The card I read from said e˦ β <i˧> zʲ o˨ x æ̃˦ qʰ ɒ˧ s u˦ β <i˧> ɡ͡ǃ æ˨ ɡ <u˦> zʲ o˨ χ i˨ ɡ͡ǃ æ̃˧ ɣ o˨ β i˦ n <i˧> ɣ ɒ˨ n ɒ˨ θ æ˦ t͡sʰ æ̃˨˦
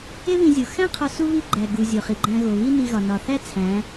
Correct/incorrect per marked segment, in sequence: incorrect: ĩ˧, incorrect: i˦, incorrect: u˨, correct

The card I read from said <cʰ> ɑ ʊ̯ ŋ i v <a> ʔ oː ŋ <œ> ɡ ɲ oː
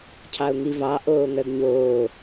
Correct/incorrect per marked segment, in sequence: correct, incorrect: ɑ, correct

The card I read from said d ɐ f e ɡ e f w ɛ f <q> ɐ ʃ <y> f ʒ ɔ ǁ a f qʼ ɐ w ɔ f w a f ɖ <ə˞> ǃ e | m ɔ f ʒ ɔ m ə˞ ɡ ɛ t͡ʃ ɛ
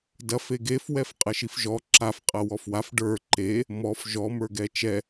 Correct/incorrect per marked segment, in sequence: incorrect: qʼ, incorrect: i, correct

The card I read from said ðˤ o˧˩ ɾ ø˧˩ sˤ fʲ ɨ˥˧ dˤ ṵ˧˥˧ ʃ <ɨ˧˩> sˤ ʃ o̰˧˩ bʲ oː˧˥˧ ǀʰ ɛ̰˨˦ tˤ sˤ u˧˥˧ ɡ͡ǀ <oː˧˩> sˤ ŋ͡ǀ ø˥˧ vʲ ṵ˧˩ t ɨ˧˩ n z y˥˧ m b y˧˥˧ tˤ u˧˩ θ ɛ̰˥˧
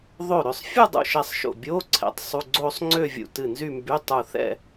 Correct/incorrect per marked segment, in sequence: incorrect: ɛ˧˩, incorrect: oː˥˧

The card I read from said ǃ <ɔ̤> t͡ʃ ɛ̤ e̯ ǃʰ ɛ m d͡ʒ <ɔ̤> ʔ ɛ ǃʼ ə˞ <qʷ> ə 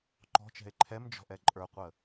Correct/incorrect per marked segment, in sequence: correct, correct, correct

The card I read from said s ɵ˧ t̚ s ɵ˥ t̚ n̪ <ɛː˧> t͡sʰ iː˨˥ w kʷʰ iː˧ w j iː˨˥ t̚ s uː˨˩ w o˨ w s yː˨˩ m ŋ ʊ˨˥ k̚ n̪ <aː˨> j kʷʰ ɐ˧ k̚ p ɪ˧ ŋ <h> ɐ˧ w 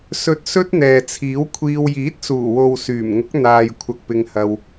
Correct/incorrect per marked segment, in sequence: incorrect: ɛː˨, correct, correct

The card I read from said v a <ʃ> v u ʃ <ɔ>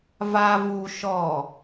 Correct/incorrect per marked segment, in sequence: incorrect: none, correct

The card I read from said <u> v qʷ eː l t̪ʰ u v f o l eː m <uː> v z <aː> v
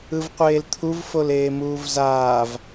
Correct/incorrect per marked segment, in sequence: incorrect: ɯ, correct, correct

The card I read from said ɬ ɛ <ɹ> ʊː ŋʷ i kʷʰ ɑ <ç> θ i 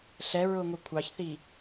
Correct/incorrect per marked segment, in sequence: correct, correct

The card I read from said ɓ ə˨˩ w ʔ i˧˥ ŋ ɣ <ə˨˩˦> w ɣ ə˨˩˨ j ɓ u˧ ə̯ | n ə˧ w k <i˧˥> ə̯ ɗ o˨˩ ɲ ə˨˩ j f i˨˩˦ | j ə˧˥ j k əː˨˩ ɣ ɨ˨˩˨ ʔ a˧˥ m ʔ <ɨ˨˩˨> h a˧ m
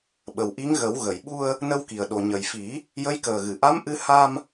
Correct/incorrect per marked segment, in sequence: correct, incorrect: i˨˩, incorrect: ɨ˧

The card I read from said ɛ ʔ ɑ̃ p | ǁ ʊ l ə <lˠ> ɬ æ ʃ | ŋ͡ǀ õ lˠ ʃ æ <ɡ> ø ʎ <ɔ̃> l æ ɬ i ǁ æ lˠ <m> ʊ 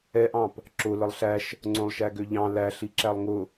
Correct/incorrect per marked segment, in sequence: correct, correct, incorrect: ɑ̃, incorrect: ŋ

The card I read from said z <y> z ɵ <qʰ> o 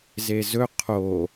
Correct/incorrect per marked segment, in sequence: incorrect: e, correct

